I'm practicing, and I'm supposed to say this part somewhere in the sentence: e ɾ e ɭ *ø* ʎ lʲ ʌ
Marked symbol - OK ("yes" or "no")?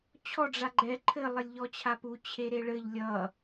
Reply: no